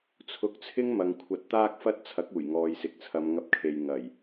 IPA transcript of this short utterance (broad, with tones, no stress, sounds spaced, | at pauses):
t͡sʰ ʊ˨˥ k̚ t͡sʰ ɪ˥ ŋ m ɐ˨ ŋ kʷʰ ɐ˧ t̚ t̪ aː˥ k̚ f ɐ˥ t̚ t͡sʰ ɐ˨˥ k̚ uː˨˩ j ŋ ɔː˨ j s ɪ˨ k̚ t͡sʰ ɐ˨˧ m ŋ ɐ˧ p̚ kʰ e˨ j ŋ ɐ˨˩ j